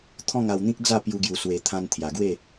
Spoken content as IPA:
t̪ʰ ɔ̃˥˧ ŋ a˧ w n̪ ĩ˦ k̚ d͡z a˥˧ p j u˧ ɡ j u˨˩ s w e˨˩ t̪ʰ ã˧ n t̪ʰ j a˨˩ ɡ w e˥˧

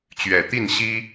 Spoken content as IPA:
t͡ɕ ɥ ɛ˨˩ t̪ i˥˨ n ɕ i˦

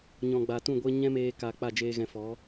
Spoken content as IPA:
ɲ ɔ̃˨ ɡ͡b a˨ t ũ˦˨ ɡʷ e˦ ɲ ɛ̃˦ m eː˧ k a˨ k͡p a˦˨ d͡ʒ eː˧ ɣ ɛ̃˧ f ɔ˨˦

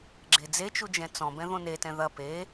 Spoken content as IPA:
ɡ͡ǁ e d͡z e t͡ʃ u d͡ʒ ɛ̃ t͡s ɔ̃ b ɛ̃ ð õ n e t ɛ̃ ð ɐ p e

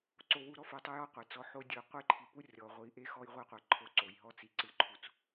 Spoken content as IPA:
ǀ o˨ w u˨ ɾ ɔ˦ f o˨ tˤ o˦ j ɔ˦ qʷ e˨ t͡s ɔ˦ ħ o˦ dʲ ɯ˨˦ qʷ ɯ˦ j ǃʰ i˨ p u˦ rʲ ɔ˨ ʁʷ i˨˦ ʔ e˦ x ɔ˦ j ʁʷ e˦ qʷ e˨ ǃʰ o˦ ǀ o˨ j ɦ ɔ˦ t͡s i˨ ǀ ɯ˨ ǃʰ u˨ t͡s

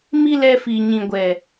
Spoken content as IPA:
m i˦ l ɛ˧ f i˨ ɲ ĩ˨ ɡʷ ɛ˨

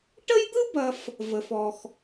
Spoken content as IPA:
ʈ ə˥ j d̪ ɯ˥ b ɐ˨ f | v ə˩ f ɔ˩ x

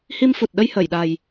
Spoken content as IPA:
h i˧ m f u˨˩ t̚ ɗ ə˧ j h əː˧˩ j ɗ a˨˩ j

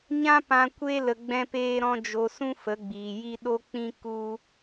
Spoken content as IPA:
ɲ ã˦ p ã˧ kʷ e˦ l ə˧ ɡ͡b ɛ̃˦ p eː˦ ɾ ɔ̃˦ d͡ʒ o˧ s ũ˦ f ə˨˦ ɡ͡b iː˨ j i˦ ɗ o˦ k͡p ĩ˦ k u˦

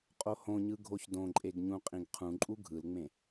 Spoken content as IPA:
qʼ o h õ ɲ ɯ ɡʱ o ç d õ ǃʼ e ɡ ɲ ũ qʼ ĩ ɡ qʰ ũ ǃʼ u ɡʱ ɯ l ŋ͡m ẽ

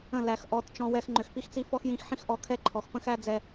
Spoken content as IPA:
ə̃˦˨ l æ˨ x ʔ ɔ˨˦ t t͡ʃ ɔ̃˧ w ɛ˧ x ŋ͡ǃ ʏ˨ x p i˦ x t͡s i˦ f ɔ˦ x j ĩ˦˨ x ħ ĩ˦ x ʔ ɔ˧ kʰ ɛ˦ ǃʰ ɔ˨ x p ə̃˦ x æ˦ d͡z ɛ˦

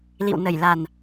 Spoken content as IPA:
l ḭ˧˨ w n ə˧˩ j l a˨˩ n

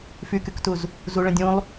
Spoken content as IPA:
f y k y k t u z | z u ɭ ə̃ dʲ ũ lˠ

